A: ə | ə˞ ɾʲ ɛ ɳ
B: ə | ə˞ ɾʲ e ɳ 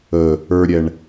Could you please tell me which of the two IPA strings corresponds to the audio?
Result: A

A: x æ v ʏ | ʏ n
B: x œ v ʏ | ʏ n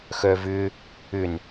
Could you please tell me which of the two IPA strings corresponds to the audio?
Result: B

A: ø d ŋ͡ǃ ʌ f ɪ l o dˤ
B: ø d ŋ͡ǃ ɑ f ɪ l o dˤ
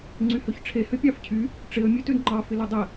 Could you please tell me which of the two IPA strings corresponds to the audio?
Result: B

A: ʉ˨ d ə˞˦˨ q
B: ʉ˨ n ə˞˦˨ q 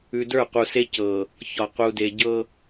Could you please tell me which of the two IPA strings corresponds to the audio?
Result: A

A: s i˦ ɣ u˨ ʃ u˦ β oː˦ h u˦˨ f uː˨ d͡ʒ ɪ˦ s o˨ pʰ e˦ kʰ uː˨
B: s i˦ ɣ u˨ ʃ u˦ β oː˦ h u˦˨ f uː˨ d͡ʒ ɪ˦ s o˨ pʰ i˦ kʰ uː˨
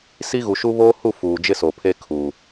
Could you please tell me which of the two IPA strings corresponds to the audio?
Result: A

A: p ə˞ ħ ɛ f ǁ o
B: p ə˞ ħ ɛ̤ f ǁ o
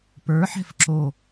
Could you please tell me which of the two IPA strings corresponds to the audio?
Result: B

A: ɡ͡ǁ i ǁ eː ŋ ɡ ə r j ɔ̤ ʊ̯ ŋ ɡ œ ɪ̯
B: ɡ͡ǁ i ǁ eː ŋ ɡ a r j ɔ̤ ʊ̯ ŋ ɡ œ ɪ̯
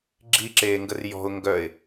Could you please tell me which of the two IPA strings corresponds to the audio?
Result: A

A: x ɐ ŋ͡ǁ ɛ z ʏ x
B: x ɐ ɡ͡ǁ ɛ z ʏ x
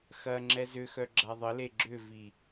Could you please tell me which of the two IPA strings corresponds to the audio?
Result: A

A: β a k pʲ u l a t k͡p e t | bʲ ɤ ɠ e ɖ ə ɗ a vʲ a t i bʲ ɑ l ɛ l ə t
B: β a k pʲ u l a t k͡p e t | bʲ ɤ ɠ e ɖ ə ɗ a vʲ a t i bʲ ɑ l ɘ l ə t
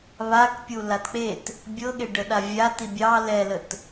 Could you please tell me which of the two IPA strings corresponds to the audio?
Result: A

